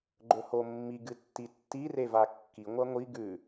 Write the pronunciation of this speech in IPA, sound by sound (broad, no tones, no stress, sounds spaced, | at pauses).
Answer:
ɡ͡ǃ ɵ h o mː i ɡ ɨ tː i tː i r e v a kː i ŋʷ ɐ ŋʷ i ɡ ʉ